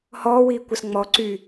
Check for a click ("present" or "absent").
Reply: present